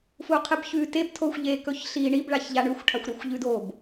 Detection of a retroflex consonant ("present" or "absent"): present